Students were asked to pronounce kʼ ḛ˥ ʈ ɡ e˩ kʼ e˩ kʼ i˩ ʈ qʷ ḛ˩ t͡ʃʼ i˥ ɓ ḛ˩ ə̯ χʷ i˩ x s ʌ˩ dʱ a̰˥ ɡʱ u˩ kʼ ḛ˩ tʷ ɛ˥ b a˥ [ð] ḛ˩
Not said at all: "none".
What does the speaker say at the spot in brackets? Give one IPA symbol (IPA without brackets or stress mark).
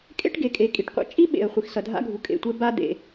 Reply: d̪